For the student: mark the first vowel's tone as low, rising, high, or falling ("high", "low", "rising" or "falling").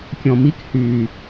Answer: low